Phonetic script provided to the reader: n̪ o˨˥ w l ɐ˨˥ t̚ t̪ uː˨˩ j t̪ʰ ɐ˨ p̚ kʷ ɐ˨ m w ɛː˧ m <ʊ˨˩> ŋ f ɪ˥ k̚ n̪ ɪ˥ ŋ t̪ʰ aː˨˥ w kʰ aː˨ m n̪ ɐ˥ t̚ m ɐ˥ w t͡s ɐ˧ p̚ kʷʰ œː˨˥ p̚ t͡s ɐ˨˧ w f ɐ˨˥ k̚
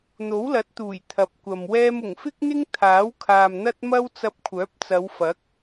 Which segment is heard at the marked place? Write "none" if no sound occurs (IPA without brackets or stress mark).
ʊ˨˩